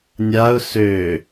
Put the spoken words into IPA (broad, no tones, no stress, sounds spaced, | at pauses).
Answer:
nʲ a ʊ̯ s ø